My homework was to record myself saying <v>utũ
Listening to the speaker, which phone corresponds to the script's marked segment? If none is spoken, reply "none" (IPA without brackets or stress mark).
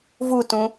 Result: v